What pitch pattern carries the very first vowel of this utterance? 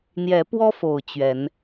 rising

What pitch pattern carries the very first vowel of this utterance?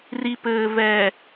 low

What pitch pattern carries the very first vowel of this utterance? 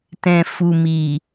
low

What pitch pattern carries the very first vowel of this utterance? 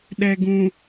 low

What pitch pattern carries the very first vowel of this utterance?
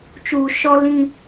low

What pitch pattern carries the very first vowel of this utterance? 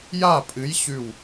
falling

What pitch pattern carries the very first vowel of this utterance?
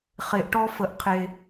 low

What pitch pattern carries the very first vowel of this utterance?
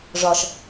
low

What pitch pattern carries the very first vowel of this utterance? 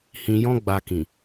low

